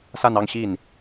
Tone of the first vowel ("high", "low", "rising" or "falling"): falling